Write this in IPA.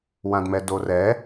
w ã d m ɛ d o r ɛ

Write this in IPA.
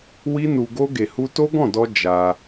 w i˦ n u˧ ɡ o˦ ɡ e˧ h u˦ t o˦ ɡ ɔ̃˦˨ d ɔ˧ d͡ʒ a˧

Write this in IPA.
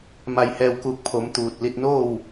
m a˧˩ j h ɛː˧˩ w k uː˧˩ k̚ pʰ o˩˧ m t̪ uː˧˩ t̚ l i˧ t̚ n oː˥˨ w

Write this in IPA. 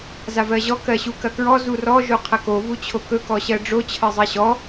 z a v ɜ ʑ ɔ k ɜ ɕ u k ɐ k ɹ ɔ z u r ɔ ʒ o qʰ ɐ k o v u t͡ɕʰ o k ɵ k ɔ ɕ ɜ ɖ͡ʐ o t͡ɕʰ ɜ zˤ ɜ ɕ ɔ

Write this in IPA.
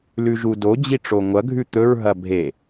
l ʉ ʒ u d o d͡ʑ i ʈ͡ʂ o ŋʷ ɐ ɡʱ ʉ t̪ ɵ ɹ ɦ ɐ bʱ e

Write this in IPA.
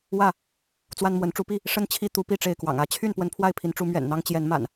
w ä˥˨ | t͡s w a˦ n m w ə˨˦ n ʈ͡ʂ u˨˦ p i˥˨ | ʂ ə˦ n t͡ɕʰ i˦ t̪ u˨˦ p i˥˨ ʈ͡ʂ e˥˨ ɪ̯ k w ɑ̰˨˩ ŋ ä˥˨ t͡ɕʰ y˥˨ n p w ə˦ n pʰ w a˥˨ ɪ̯ pʰ i˨˦ n ʈ͡ʂ u˨˦ m ɥ ɛ̰˨˩ n n̪ ɑ˦ ŋ t͡ɕ j ɛ˨˦ n m a̰˨˩ n

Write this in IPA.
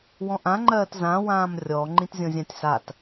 w ɔ̃ ʔ ã ŋ͡ǃ ɜː t z ã w ãː m rʲ ɔ ŋ͡ǃ ĩ t zʲ ɔ̃ zʲ ã tʲ s a t

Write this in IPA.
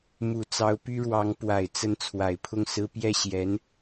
m u˨˩ t͡s ɑ˧˥ ʊ̯ p y˥ ɻ w ɑ˧˥ ŋ p w a˨˩ ɪ̯ t͡s ə˧˥ n t͡sʰ w a˨˩ ɪ̯ pʰ ʊ˥˩ ŋ s ɹ̩˥ p j ɛ˥˩ ɕ j ɛ˧˥ n

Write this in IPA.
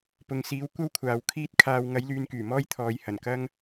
p ʊ˨ ŋ s iː˨˥ w kʷ ɐ˥ w kʷʰ aː˨˧ w kʰ iː˥ t̚ kʰ aː˧ w ŋ ɐ˨˥ j l yː˨˧ n k yː˨˩ m ɔː˥ j t̪ʰ ɔː˨˧ j h ɐ˨˩ n k ɐ˥ ŋ

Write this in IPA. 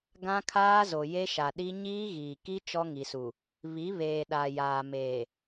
ɡ ã˦ kʰ aː˦ z o˨ j e˦ ʃ a˨ ɗ i˦ ɲ iː˦ ɣ iː˨ k i˦ t͡ʃ ɔ˦ ŋ i˨ s u˨ | β i˨˦ β eː˨ ɗ a˨ j aː˨ m eː˨

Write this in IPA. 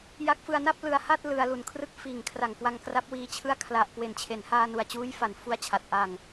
j a˦˥ k̚ f ɯ˧ a̯ n a˥˩ p̚ l ɯ˧ a̯ h a˥˩ t̚ l ɯ˧ a̯ l u˨˩ n kʰ r ɯ˥˩ k̚ f iː˨˩ ŋ kʰ r a˨˩ ŋ k w a˧ ŋ k r a˦˥ p̚ w iː˧ t͡ɕʰ ɯ˥˩ a̯ kʰ l a˨˩ ʔ k w e˨˩ n t͡ɕʰ e˩˦ n h aː˧ n u˨˩ a̯ t͡ɕ uː˦˥ j f a˨˩ n f u˦˥ a̯ t͡ɕʰ a˨˩ t̚ ʔ a˨˩ ŋ

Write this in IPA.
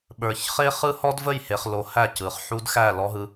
ɓ ə˞˨ ç χ e˦ χ ɯ˦ h ɔ˦ d v ə˦˨ j h e˨ χ l o˨ h æ˦˨ c ɯ˨ χ ħ u˦ d x æ˦˨ l ɔ˦ ɦ ɯ˦

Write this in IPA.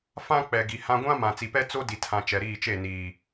f ã˦ k͡p ɛ˨ ɡ i˨ h ã˦ ɡʷ ã˦ m ã˨ t͡s i˨ p ɛ˦ t͡s o˦ d i˨ tʰ ã˨ t͡ʃ ɛ˨ ɾ iː˦˨ t͡ʃ e˦˨ n iː˨

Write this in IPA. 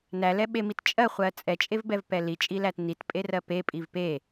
n æ l ɛ ɓ e m i t t͡ʃʼ ɜ χʷ ɜ t͡sʼ ɛ t͡ʃʼ e v b ɛ v p ɛ l i t͡ʃʼ i l æ t n i t pʼ e r ɜ p e pʼ i v p e

